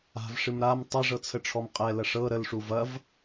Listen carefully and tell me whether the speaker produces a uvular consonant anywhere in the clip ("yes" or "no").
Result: yes